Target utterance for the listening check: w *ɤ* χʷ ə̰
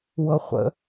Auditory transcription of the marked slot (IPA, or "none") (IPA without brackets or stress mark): ɤ